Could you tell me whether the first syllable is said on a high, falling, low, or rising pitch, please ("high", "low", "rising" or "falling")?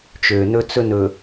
low